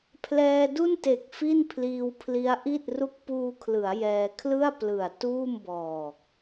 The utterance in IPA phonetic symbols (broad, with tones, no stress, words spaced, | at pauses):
pʰlɛː˧du˥˩nte˨˩k̚ fi˥˩npʰliː˧wpʰli˦˥a̯ ʔi˥˩t̚ ru˦˥k̚puː˧kʰlɯ˩˦a̯ jɛː˧ kʰlɯ˥˩a̯ plɯ˨˩a̯ tuː˥˩mbɔː˨˩k̚